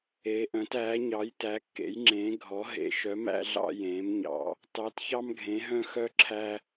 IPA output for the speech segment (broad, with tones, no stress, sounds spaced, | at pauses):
eː˩˧ ʔ œ̃˩˧ t æː˩˧ ɲ ɑ˩˧ j t æ˩˧ kː ḛ˩˧ j ŋ͡ǁ ẽː˩˧ ɡʱ ɔ˩˧ ɦ ḛ˩˧ ʃ œ˩˧ m æ̰˧ ɮ ɑ̰˧ j ẽː˩˧ m ɲ ɑ̰˩˧ | t ɑ˩˧ t ç ɑ˧ m ɡʱ ẽ˩˧ ɦ œ̃˧ x œ˧ ǁʰ æ˧